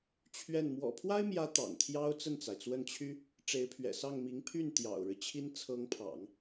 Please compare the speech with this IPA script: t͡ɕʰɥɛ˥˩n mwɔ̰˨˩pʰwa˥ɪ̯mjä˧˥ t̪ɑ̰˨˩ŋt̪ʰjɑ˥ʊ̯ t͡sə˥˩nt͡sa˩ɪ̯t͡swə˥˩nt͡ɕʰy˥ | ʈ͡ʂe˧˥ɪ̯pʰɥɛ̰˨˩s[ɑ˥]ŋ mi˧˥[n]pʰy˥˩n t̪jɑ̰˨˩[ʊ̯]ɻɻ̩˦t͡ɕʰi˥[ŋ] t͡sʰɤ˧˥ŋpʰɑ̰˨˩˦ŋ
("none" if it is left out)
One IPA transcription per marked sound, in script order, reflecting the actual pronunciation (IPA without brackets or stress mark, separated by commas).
ɑ˥˩, ŋ, ʊ̯, n